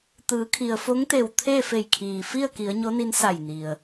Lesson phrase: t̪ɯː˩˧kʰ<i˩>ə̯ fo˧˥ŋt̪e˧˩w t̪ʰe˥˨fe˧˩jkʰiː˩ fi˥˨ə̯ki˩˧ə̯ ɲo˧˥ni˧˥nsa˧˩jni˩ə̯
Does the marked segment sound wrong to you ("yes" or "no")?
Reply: no